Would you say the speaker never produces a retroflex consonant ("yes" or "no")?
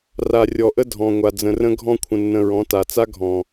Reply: yes